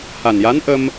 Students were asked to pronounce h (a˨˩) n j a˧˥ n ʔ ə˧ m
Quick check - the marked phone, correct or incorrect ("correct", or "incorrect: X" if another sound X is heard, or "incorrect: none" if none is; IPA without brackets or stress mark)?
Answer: correct